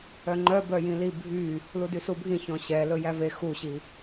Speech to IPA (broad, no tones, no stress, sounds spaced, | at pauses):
œ ŋ͡ǃ œ b œ j ĩ l i bʱ y | l u d y s u bʱ ĩ ç ɔ̃ ɕ ɛ l ɵ j æ v e x u ɕ i